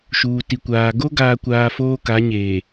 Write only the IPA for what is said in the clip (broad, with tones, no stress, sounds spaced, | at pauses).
ʃ uː˨ t i˨ kʷ aː˨ ɡ o˦ ɡ aː˨ kʷ aː˨ f oː˦ k a˨˦ ɲ eː˨